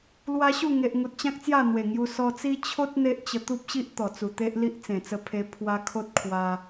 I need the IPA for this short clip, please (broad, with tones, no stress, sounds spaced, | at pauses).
l w a˦ ɕ u˥˧ ŋ e˨ ʔ ŋ u˨ t̚ t͡ɕ ã˦ k̚ t͡s j a˥˧ n̪ w e˨˩ ŋ j u˧ s ɔ˧ t͡s i˦ t͡ɕʰ o˦ t̚ n̪ e˦ ʔ t͡ɕ ə˧ t̪ u˦ p̚ ɕ i˦ ʔ t̪ ɔ˨˩ t͡s u˨˩ t̪ e˦ ʔ l i˦ ʔ t͡s ẽ˨˩ t͡s ə˧ pʰ e˧ pʰ w a˧ kʰ o˦ t̚ kʰ w a˧